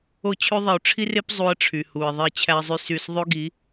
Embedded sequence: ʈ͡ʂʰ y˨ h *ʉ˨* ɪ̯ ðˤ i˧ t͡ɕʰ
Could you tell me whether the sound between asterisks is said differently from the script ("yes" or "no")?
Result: yes